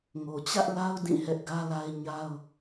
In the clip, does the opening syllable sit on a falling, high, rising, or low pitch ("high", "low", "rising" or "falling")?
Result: low